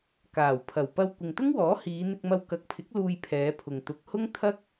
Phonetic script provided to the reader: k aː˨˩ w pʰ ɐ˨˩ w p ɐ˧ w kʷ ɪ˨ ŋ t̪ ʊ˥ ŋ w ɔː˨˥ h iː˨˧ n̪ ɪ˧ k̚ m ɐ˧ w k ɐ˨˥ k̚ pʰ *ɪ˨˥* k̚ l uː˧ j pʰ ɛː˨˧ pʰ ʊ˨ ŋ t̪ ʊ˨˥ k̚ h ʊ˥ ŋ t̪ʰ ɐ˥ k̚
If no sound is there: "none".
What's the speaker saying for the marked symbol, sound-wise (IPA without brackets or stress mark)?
ɪ˨˥